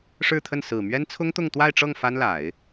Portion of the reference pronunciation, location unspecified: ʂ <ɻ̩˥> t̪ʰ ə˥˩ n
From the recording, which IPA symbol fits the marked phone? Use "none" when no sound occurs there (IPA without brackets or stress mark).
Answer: ɻ̩˥˧